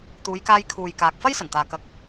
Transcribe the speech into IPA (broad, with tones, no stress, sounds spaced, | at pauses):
t̪ uː˨˧ j k aː˧ j kʰ uː˨ j k aː˨ k̚ f ɐ˥ j s ɐ˨˩ n t̪ aː˨ k ɐ˨˥ k̚